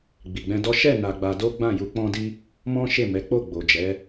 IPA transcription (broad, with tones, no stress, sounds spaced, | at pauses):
ɡ͡b i˨ ɡ͡b ɛ̃˧ d ɔ˦ ʃ ɛ˦˨ n a˧ ɡ͡b a˧ d o˦ ɡ͡b ã˦˨ j u˧ k͡p ɔ̃˧ d i˧ | m ɔ̃˦ ʃ e˦˨ m ɛ˨˦ k͡p o˦˨ ɡ͡b o˨ d͡ʒ ɛ˨˦